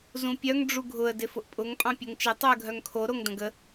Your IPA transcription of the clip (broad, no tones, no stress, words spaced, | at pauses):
zũpʲœŋ ɖ͡ʐuɡʱʊə̯ dɪfʊʔpʼʊŋ pʼɑ̃pʲoŋt͡ʃɪ tˤuə̯ɡʱœŋkʰo ɾoŋdə̃ɡə